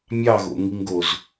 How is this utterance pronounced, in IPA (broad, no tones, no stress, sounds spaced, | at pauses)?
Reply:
mʲ ɑ ɣ o̰ ŋ i ŋ ɡ o z